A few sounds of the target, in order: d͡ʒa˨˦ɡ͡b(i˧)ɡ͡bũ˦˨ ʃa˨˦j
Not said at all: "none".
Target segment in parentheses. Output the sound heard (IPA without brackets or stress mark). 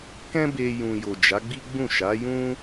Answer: i˦